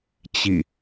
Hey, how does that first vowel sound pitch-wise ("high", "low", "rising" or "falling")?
falling